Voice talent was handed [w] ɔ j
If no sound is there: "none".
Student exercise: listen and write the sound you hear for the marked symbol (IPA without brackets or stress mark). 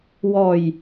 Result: w